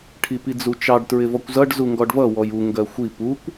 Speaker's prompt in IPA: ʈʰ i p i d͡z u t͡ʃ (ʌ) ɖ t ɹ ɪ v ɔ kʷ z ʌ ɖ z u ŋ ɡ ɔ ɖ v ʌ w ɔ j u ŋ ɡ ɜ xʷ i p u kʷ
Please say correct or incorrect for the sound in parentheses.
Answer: incorrect